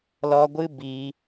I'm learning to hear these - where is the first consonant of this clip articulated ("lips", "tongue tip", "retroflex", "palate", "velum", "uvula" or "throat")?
tongue tip